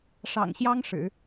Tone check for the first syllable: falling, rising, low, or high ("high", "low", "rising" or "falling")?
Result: low